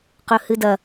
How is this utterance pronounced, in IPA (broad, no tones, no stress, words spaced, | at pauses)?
qɵhɨdɐ